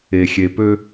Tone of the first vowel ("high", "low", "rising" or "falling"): low